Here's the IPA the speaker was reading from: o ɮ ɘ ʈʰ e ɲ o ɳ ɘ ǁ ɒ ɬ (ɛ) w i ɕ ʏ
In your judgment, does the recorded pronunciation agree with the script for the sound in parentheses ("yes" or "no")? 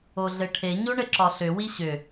no